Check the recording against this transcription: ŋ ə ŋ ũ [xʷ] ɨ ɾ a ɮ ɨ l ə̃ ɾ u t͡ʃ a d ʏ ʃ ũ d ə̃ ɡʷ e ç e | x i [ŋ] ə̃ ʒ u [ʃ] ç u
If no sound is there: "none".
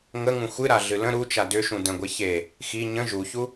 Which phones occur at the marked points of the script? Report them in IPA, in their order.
xʷ, ɲ, none

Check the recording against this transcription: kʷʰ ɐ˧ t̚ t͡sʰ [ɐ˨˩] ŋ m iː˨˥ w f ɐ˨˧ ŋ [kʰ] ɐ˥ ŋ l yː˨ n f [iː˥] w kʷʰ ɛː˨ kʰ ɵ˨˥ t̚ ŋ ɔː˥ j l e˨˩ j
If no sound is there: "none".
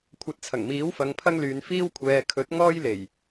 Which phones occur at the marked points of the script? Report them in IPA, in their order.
ɐ˨˩, pʰ, iː˥

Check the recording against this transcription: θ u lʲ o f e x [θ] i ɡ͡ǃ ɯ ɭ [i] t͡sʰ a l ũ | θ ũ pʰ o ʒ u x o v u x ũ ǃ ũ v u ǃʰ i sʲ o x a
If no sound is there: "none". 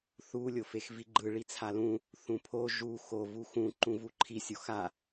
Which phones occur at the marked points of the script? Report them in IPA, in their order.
v, i

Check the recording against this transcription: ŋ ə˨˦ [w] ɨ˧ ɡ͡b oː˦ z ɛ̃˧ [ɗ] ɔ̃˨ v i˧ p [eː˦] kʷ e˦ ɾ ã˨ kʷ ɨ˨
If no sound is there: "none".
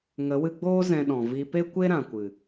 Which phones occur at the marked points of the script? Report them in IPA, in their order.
w, ɗ, e˦

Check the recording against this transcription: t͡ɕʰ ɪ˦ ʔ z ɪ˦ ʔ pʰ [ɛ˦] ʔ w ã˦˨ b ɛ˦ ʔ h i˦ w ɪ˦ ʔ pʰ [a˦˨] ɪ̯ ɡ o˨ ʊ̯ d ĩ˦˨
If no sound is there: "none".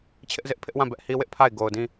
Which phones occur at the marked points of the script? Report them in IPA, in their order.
ɪ˦, a˦˨

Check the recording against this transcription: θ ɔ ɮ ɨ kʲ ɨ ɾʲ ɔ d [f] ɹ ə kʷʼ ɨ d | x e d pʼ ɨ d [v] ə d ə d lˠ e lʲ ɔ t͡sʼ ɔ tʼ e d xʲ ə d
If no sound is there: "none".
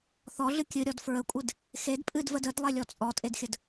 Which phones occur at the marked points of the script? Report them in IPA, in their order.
f, v

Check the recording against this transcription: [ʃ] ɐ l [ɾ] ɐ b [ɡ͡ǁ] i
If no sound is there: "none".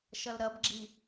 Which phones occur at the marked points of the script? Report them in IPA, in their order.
ʃ, ɾ, ɡ͡ǁ

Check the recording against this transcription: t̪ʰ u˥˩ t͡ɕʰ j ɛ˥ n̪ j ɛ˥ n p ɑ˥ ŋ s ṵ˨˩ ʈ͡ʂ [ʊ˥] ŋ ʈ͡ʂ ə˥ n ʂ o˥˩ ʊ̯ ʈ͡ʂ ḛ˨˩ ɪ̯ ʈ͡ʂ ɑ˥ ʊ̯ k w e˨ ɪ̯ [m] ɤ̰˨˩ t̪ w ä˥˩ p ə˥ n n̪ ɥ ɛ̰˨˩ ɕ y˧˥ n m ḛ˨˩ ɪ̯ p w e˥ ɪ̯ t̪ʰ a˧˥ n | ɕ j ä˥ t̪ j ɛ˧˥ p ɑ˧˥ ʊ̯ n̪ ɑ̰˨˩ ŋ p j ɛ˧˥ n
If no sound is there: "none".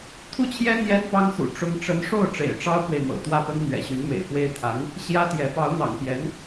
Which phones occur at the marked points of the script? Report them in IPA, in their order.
ʊ˥, m

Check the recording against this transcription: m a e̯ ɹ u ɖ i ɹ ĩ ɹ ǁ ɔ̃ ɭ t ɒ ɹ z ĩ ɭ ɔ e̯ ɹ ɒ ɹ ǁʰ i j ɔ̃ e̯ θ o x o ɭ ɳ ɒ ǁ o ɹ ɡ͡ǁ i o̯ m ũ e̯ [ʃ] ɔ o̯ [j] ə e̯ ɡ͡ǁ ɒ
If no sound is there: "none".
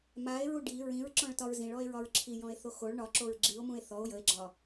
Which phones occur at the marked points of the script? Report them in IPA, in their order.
θ, j

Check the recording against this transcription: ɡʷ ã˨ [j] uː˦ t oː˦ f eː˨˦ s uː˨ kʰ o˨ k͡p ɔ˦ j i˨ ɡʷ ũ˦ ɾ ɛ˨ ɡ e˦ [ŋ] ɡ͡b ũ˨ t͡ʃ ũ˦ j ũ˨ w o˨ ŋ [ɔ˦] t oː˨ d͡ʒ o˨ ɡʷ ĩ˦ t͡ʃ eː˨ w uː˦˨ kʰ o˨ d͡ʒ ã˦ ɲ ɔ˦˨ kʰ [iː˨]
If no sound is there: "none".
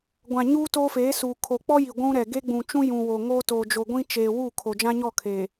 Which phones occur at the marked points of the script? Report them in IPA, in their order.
ɲ, none, o˦, eː˨

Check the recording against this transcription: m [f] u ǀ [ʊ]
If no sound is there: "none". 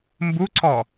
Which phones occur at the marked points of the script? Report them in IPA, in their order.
b, ɔ

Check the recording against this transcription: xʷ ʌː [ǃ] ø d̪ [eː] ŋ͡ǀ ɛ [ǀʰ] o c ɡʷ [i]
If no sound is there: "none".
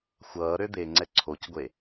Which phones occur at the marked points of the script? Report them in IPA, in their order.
ɾ, eː, ǀʰ, e

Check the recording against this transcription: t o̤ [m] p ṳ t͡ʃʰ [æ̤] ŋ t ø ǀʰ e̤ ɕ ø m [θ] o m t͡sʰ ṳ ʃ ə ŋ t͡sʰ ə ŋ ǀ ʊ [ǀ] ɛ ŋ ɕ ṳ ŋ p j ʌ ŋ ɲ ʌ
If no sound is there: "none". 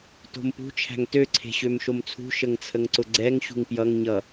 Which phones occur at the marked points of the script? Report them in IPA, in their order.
m, æ̤, ʃ, ɡ͡ǀ

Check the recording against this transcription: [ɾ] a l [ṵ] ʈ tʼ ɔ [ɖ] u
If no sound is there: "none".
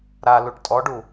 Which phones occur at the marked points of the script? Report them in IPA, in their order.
ɾ, u, ɖ

